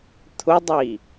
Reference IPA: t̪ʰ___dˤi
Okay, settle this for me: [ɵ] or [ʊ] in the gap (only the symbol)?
ʊ